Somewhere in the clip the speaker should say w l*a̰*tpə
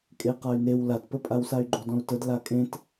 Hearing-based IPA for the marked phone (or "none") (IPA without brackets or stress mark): a